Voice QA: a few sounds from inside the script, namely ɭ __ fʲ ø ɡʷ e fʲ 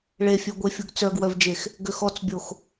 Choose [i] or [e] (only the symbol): e